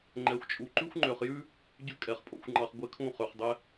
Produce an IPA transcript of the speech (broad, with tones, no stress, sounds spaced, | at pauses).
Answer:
ŋ͡ǃ ɛ˨ xʷ t͡ʃʼ u˨ ǃ ʉ˦ xʷ ŋ͡ǃ ø˨ χ j ʉ˦ | ɟ ʉ˦ kʼ ɛ˨ χ pʼ o̰˨ xʷ ŋ͡ǃ ɑ˨ χ ɡʷ ɛ˦ kʰ ũ˦˨ χ ø˨ χ dˤ ɛ˦